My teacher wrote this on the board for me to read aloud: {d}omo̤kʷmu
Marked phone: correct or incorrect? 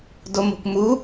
correct